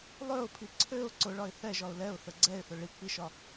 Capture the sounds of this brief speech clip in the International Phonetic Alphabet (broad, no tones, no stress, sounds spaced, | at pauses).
lˠ ø ʊ̯ pʰ i ǀʰ ø ʊ̯ ǀ ʊ ɭ ɒ ɪ̯ θ ɛ ʒ ɒ ʊ̯ l ɛ ʊ̯ θ ə ɡ͡ǀ ɛ ɪ̯ θ ʊ ɭ i k͡p i ʃ ɒ